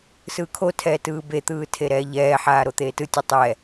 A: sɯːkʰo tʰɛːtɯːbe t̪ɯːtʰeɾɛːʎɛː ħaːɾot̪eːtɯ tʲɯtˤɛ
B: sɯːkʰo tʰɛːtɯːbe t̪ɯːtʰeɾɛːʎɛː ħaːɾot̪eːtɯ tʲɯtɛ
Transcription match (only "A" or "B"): A